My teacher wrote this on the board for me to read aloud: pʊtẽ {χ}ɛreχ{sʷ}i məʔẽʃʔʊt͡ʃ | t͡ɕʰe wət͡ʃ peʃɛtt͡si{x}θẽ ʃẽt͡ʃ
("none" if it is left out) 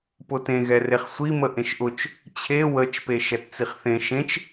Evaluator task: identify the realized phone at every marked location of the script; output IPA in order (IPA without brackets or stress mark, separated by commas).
ɣ, sʷ, χ